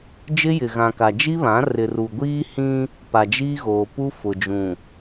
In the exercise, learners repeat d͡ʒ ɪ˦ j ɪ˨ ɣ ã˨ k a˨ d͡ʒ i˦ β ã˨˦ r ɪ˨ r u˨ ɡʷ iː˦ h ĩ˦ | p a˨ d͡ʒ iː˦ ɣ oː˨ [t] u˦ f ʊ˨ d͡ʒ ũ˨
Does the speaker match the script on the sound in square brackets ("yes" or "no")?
no